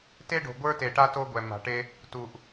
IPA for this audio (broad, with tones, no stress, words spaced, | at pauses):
te˦ɖo̤˨ ɡʷə˞˦te˨ʈa˦ to˦ɡʷɛ˨ ma̤˨ʈe˦ | tu˨ʔ